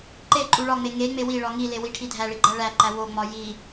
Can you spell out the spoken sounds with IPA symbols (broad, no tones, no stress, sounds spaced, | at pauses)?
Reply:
ǃ e ǃʼ u ɭ ɒ ŋ͡m e ŋ e ŋ͡m e w i ɭ ɒ ŋ i l e w i ʈʰ i dʱ æ ɭ i ɡ͡ǃ æ ɭ æ ǃ æ w o ŋ͡m ɒ j i